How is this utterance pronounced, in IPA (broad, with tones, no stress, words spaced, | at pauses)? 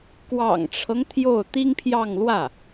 kwɑ̰˨˩ŋʈ͡ʂʰɤ˦ŋ t̪ʰjo˥˩ʊ̯ t̪i˥ŋpʰjɑ˥˧ŋlwä˥˩